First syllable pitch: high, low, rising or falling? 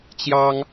high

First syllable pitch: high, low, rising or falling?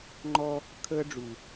high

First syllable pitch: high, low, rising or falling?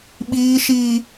high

